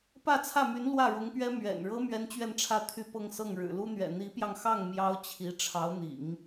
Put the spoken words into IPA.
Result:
pä˥˧t͡sʰä˥˩my˧˥n lwä˥˩ɻʊ˧˥ŋpɥɛ˥ mɥɛ̰˨˩nɻɤ˥ mɥɛ˥nt͡ɕɥɛ˥˧nʈ͡ʂʰä˥˧ t̪ʰy˥˧pɤ˥˧ŋsɤ˥˩ŋ ɻɻ̩˨˩lu˥n̪ɥɛ̰˨˩ n̪i˧˥pjɑ˧ŋxɑ˥˩ŋ mjɑ˥ʊ̯t͡ɕʰi˧˥ ʈ͡ʂʰɑ˧˥ʊ̯n̪ḭ˨˩˦ŋ

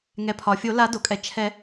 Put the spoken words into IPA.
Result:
ŋɛ˩pʰɒ˩fʲo˨˩˦ la˨˩˦do˩kʼɛ˩t͡ʃʰɛ˨˩˦

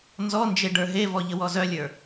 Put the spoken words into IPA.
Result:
nzɔnd͡ʒe ɖə˞ɦevɔ ʎəwɔzœlʲə˞

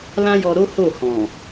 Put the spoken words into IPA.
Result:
lã˦jɔ˧ɾo˦ ho˦˨hɔ̃˨

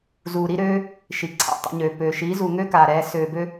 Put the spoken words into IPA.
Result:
zuː˨ɾi˧ɾøː˧ | ʃi˨ǀʰa̰˦˨tˤɛ̰˧ɲøː˨ pøː˨ʃiː˨˦ zu˨ŋø˦ kaː˨ɾɛː˧ søː˨bø˧

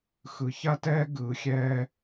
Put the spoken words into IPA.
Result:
xɯ˨ ça˦tɛː˦ ɡɯː˨xʲɛː˧

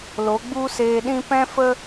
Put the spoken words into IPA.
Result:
lo˨˦ɡ͡bu˦seː˧ɗĩ˦ pɛ̃˦fə˦

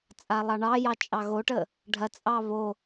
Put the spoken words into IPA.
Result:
t͡sʼalˠɑɳɑjɑ t͡ʃʼɑɣoʈə | ɖʱɐt͡sʼɑ βo

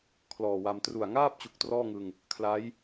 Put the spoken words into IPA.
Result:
kʰlɔː˨˩wa˧m tru˨˩a̯ŋaː˥˩p̚t͡ɕu˨˩k̚ trɔː˥˩ŋɯ˧ŋ | kʰla˦˥j

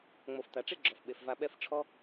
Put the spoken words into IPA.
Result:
ŋ͡mo˨ft̪a˨ʈ͡ʂe˦ ɡ͡ǁɔ˨fɓe˨fva˧ ɓɛ˦f ʈ͡ʂʰɔ˦

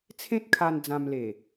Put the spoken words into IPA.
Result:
t͡sʰẽ˦t̚kʰa˧n d͡zã˧mle˨˩

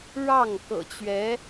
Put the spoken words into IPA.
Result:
ɻɑ˥˩ŋ kɤ̰˨˩t͡ɕɥɛ˧˥

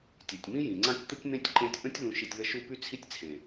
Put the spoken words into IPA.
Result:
tʲe˨tʲmĩ˦jĩ˨ŋ͡ǀã˦tʲ t̪ə˦tʲn̪ẽ˦tʲ ǃẽ˧tʲʔə̃˦tʲ ðũ˧ʃi˧tʲðə˦ʃu˦ py˦t͡sʰi˦tʲt͡sʰẽ˨

